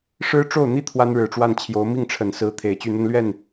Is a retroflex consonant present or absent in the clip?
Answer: present